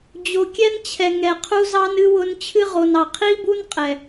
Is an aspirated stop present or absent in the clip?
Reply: present